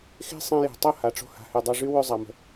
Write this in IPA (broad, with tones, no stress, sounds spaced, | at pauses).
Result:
x e̤˦ sˤ ẽ˧ j e̤˨ tˤ o˦˨ h a˨ ʈ͡ʂ o̤˧ h a̤˨ h ʉ˨ dˤ ø˧ ʐ y˦ w ʉ˦˨ zˤ a˨ m ə̤˨